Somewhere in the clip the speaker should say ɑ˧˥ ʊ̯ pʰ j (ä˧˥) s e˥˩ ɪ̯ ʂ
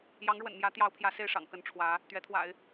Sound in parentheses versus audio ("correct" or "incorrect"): correct